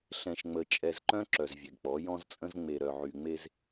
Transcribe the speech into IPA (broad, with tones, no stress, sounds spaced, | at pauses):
ɬ ɛ̃˨ ʃ ŋ͡m ə˨ t͡ʃʼ ɛ˨ z ǃ œ̃˦ ǁ œ˨ z vʲ ɛ˨ ɡ k͡p ɔ˨˦ j ɔ̃˦ z t͡sʼ ə̃˦ z ŋ͡m e˨ ɾ œ˨ ʕ y˨ ŋ͡m e˦ z